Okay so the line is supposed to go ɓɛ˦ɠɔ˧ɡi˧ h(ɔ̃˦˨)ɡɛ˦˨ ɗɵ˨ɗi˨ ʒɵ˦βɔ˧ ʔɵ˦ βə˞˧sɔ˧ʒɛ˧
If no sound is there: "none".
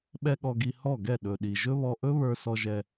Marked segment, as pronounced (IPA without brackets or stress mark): ɔ˦˨